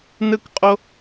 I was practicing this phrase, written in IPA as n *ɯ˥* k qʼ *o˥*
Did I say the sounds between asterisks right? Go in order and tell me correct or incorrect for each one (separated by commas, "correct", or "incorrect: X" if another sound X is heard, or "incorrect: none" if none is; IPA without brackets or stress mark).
correct, correct